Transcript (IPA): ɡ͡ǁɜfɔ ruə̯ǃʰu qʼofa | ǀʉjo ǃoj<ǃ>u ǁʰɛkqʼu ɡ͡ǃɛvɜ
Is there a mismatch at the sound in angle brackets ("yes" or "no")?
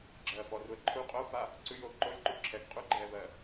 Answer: no